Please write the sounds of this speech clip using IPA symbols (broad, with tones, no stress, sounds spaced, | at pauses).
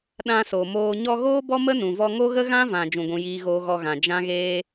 ɗ ã˧ s o˨ m oː˧ ɲ ɔ˧ ɣ oː˦ b ɔ˦ m ə˦ n ũ˨ v ɔ˧ ŋ o˦ ɣ ə˦ ɣ ã˦ v ã˨ d͡ʒ ũ˧ ɡʷ ũ˧ j iː˦ ɣ oː˦ ɣ ɔ˧ ɣ ã˨ d͡ʒ ã˦ ɣ eː˦